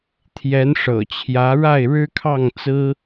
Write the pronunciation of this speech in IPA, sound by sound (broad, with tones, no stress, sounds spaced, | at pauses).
t̪ʰ j ɛ˧˥ n ʂ ɤ̰˨˩ t͡ɕʰ j ä˧˥ ɻ a˥˩ ɪ̯ ɻ ɻ̩˥ kʰ ɑ˥˩ ŋ t͡s ɹ̩˥